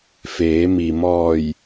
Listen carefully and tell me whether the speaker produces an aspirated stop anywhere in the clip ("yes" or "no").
no